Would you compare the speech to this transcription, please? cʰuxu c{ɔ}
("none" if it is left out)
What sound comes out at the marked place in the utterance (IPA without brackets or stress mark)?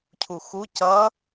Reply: ʌ